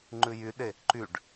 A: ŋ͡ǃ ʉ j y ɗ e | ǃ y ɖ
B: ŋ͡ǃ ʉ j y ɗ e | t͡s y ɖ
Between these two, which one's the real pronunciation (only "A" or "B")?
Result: A